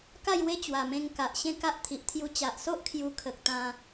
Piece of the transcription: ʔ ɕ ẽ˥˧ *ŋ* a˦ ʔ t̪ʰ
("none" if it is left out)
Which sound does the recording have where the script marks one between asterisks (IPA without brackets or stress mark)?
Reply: k